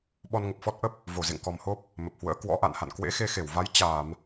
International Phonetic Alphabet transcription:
ɓɔ˧nŋə˨˩p̚fɔ˦˥t̚ ʔə˦˥p̚ | vo˧˩zḛ˧˨ŋkɔ˨˩mho˦˥p̚ | mə˨˩p̚hwə̰ː˧˥ kwɔ̰˧˥ ʔa̰˧˨nha̰˧˨n kwḛ˧˥xe˧xe˧˩wva˨˦j t͡ɕaː˧˩˨m

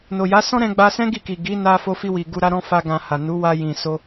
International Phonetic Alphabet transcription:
no˨ja˨˦ sɔ̃˦ɾɛ̃˧ɡ͡ba˧sɛ̃˦ ɡi˦˨ki˨ ɡi˨˦na˧ fo˧fi˧wi˨ ɡu˧ɾa˦ɾɔ̃˦ fa˦ɡã˧ha˨ nu˨˦wa˧ jĩ˨so˧

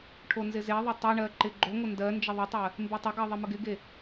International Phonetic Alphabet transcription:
ʈʰonzɪzeðˤɪ tˤeɳɜ ǃɪɡ͡ǃoŋʷə ndɜ nd͡ʒəðˤɪtˤɜ | mbetˤəɡɜ ðˤɪməɡɪɡe

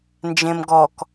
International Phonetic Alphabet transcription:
nd͡ʒẽmɡɔk

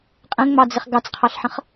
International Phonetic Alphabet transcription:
qʼə̃ŋ͡mɑd͡zɪχ ɡɑt͡sqʰɑɬħə̃χ

